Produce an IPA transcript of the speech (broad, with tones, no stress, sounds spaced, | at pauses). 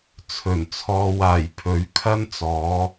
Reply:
t͡sʰ ɵ˨˩ n t͡sʰ ɔː˨ w aː˨˩ j pʰ ɵ˨˥ ɥ kʰ ɐ˥ n t͡s ɔː˨˥